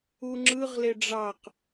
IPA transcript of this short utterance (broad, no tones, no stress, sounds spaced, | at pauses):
u ŋ͡ǁ ɯ ʁ l e ɖ͡ʐ ɑ q